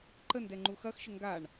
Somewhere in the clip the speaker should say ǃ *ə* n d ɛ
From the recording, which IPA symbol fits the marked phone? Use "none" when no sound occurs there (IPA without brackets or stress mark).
ə